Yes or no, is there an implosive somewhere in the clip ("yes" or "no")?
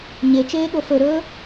yes